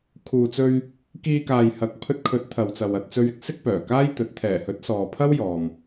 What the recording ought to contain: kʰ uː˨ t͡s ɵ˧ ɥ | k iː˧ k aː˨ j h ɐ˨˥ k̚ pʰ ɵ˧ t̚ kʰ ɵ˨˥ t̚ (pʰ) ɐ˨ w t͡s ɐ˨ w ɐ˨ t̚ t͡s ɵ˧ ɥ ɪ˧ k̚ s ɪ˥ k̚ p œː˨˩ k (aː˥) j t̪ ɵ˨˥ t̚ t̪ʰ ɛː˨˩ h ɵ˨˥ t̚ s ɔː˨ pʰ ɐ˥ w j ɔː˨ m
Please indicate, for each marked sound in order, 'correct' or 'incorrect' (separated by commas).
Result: incorrect, correct